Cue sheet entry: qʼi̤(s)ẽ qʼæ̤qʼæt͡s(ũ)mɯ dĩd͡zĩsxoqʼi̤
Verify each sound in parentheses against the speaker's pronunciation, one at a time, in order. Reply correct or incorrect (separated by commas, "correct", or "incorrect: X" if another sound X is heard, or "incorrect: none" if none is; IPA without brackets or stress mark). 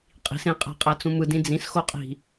correct, correct